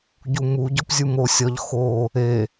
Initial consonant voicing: voiced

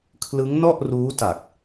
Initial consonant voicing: voiceless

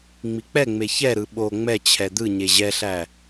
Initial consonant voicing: voiced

